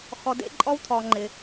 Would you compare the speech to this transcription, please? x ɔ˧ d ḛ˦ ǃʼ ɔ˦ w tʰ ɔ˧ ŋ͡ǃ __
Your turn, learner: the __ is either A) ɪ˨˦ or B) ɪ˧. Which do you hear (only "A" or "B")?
B